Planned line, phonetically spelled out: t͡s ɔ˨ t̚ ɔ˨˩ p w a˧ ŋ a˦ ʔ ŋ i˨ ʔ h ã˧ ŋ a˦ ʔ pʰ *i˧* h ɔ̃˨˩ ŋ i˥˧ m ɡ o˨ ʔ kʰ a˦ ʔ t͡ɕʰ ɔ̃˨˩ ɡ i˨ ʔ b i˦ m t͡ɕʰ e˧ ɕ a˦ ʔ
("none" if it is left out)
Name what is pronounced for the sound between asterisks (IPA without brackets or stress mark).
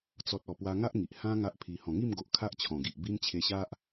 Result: i˧